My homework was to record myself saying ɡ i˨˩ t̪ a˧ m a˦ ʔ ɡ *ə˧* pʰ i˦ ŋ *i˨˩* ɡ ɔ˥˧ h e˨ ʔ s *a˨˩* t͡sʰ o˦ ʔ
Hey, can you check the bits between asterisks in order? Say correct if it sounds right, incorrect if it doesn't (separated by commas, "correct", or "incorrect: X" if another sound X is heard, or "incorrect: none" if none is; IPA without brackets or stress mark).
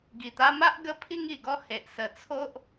incorrect: ə˦, correct, incorrect: ə˨˩